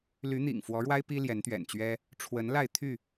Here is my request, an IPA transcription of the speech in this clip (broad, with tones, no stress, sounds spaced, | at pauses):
l y˨˦ n̪ ḭ˨˩ ŋ f w ɔ˨˦ ɻ w a˦ ɪ̯ p i˦ l j ɛ˨˦ n t̪ ɥ ɛ̰˨˩ n t͡ɕ ɥ ɛ˦ | ʈ͡ʂʰ w ə˨˦ n l a˥˨ ɪ̯ t̪ʰ y˥˨